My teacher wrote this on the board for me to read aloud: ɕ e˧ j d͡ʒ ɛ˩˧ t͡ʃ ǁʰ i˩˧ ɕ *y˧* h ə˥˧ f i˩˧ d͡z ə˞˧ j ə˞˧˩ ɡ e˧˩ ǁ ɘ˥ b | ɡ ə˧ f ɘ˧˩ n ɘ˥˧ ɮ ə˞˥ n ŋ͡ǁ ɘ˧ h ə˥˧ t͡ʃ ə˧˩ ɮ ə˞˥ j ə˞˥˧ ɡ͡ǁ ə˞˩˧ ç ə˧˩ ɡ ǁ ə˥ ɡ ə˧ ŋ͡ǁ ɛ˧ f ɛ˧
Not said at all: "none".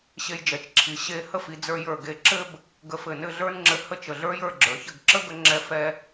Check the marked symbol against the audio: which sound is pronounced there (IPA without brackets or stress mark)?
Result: e˧